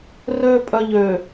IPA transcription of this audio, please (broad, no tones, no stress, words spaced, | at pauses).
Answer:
røːpʼœʎø